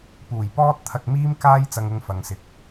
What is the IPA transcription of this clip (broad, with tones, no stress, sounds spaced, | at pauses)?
p uː˨˩ j p ɔː˥ t̚ t̪ʰ ɐ˧ k̚ m iː˥ m k aː˥ j t͡s ɐ˧ ŋ ʊ˧ ŋ f ɐ˨ ŋ s ɪ˨ k̚